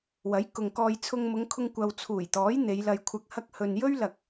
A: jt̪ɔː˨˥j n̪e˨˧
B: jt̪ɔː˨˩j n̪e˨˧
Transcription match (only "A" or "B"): A